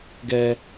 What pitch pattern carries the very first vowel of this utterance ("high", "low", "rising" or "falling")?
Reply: high